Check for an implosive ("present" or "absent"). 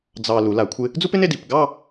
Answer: absent